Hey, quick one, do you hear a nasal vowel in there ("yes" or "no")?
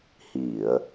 no